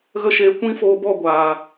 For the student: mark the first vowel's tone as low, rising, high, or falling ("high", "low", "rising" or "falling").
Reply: high